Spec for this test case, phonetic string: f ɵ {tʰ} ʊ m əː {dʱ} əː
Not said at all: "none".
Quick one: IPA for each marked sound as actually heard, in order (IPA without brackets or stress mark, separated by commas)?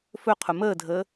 qʰ, dʱ